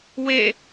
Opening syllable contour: falling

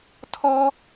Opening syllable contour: high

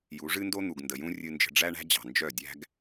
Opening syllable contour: rising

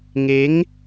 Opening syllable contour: rising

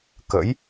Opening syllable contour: rising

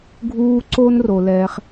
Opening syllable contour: high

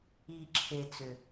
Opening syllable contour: low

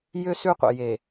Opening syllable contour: high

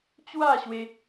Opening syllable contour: falling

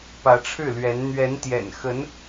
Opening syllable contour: rising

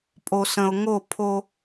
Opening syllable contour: low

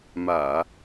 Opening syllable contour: low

